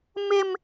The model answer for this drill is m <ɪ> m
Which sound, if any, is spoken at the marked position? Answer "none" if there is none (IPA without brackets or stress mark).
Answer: ɪ